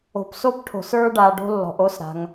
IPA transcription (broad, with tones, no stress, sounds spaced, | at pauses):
o̤˩ p s o˧ p ʈʰ o̤˩ s ə˞˧ ɖ a˩ ɖ o̤˧ lː ɔ̤˩ ʔ o˧ s ɾ a̤˩ ŋ